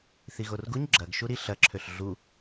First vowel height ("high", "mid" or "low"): high